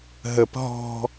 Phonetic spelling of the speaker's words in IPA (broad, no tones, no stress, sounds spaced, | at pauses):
ɦ ə p ɦ ɔ̤